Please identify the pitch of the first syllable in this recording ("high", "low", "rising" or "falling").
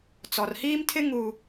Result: low